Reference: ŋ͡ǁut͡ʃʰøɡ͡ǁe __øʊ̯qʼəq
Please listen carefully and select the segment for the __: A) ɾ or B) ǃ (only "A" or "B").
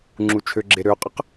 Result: A